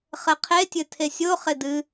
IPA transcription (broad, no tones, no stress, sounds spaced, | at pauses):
χ ɘ qʰ e tʲ ɘ tʰ e sʲ o χ ɪ d ɨ